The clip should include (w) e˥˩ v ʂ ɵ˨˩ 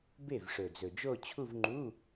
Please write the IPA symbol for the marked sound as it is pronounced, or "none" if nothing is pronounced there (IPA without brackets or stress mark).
b